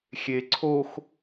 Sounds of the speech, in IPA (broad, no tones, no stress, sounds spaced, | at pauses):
xʲ e ǀʰ o x